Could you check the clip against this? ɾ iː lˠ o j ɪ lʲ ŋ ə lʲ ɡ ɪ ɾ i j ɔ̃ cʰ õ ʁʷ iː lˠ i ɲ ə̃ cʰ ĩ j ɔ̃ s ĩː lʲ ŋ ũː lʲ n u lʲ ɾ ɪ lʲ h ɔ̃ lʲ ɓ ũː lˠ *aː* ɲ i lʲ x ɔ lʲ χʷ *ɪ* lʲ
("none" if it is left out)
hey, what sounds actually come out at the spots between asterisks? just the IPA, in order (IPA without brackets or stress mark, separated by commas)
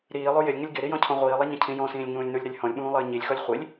əː, i